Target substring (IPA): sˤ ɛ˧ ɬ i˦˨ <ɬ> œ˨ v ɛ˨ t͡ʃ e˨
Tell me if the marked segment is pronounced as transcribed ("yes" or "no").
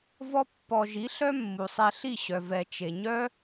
no